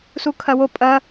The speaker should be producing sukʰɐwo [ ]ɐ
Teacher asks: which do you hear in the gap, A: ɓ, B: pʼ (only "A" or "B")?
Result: B